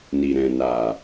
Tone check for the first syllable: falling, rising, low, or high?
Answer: low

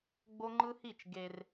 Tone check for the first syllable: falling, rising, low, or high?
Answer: high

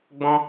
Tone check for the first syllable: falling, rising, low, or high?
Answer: high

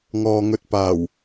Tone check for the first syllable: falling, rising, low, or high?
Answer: low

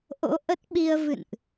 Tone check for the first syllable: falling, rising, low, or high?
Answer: rising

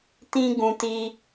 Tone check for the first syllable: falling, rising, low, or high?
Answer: high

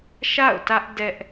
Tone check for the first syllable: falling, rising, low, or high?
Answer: falling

